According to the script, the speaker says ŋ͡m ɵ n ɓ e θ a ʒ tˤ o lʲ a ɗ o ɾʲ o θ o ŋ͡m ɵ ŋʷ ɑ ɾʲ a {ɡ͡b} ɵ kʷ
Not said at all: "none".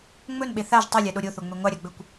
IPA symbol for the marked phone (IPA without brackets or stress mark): ɡ͡b